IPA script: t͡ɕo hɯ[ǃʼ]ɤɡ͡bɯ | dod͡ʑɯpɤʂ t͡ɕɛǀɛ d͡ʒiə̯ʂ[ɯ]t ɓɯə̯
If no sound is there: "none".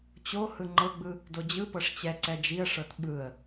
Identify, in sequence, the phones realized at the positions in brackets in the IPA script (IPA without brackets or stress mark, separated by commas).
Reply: ŋ͡ǃ, ɤ